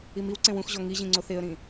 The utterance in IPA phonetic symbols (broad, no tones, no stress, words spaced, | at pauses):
imiwǀẽ wũxʑɔ ŋiʑĩ ŋ͡ǀoθeə̯ɾĩ